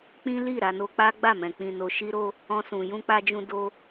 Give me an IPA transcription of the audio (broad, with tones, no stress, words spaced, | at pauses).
k͡pĩ˦li˦˨ ɾa˧no˦ k͡pa˦ɡ͡ba˦˨mɛ̃˨ k͡pĩ˧no˧ ʃi˦ɾo˦ | ɔ̃˧sũ˨ jũ˧k͡pa˧d͡ʒũ˧ do˦